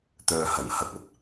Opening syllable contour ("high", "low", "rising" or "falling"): low